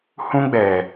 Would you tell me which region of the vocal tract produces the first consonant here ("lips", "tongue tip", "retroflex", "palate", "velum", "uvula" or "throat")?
throat